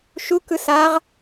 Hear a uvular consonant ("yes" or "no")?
yes